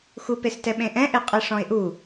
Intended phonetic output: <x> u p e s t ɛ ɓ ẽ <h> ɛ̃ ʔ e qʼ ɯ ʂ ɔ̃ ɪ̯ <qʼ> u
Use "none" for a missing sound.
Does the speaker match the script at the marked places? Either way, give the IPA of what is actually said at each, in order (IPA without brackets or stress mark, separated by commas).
x, ʔ, ʔ